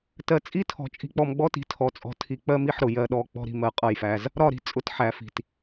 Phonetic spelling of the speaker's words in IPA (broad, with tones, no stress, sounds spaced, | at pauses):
t ɜ˨ t͡sʼ i˦˨ tʰ ɔ̤˨ t͡ʃʼ i̤˨ k͡p ɔ˨ m ɡ͡b ɔ˦ t i̤˨ tʰ ɔ˨ t͡sʼ ɔ̤˨ tʰ i˨ k͡p ɜ˦ m i˦ ħ ɾ ʊ˨ j ɜ˨ ɗ ɔ˨ k͡p ɔ̤˦ ɾ i̤˨ m ɜ˨ qʼ ʌ˦˨ j f æ˦ z | ɾ ɒ˦˨ ɾ i̤˨ t͡sʼ ʊ˦ t ħ æ˨˦ f i̤˨ t